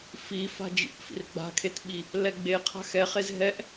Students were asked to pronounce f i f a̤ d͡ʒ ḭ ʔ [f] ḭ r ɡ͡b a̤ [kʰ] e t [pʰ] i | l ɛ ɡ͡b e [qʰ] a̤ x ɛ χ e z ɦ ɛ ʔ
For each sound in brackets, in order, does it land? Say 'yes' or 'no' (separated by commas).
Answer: yes, yes, no, yes